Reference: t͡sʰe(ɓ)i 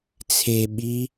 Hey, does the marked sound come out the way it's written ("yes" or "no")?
yes